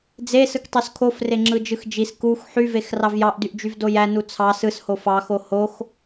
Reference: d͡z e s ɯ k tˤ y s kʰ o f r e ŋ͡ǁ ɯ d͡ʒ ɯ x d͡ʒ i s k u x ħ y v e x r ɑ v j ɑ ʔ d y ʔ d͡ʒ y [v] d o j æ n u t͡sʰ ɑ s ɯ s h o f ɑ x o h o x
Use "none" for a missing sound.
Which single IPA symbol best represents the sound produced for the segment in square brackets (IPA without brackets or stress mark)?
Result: v